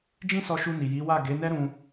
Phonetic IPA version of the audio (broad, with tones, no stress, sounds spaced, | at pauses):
d͡ʒ ĩ˦ s ɔ˧ ʃ u˧ n i˨ j i˨˦ w a˦˨ ɡ e˨˦ n ɛ˦ ɾ ũ˧